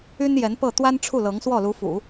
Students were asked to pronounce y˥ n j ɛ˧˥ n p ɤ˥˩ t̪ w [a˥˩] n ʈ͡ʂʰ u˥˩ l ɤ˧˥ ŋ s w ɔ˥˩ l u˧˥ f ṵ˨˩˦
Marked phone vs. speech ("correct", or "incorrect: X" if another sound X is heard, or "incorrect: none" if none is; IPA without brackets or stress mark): incorrect: a˥